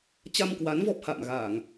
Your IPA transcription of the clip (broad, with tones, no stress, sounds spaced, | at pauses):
t͡ɕ a˧ m k w a˨˦ n v ɔ˦˥ p̚ h a̰ː˧˨ m ɣ aː˧˩˨ ŋ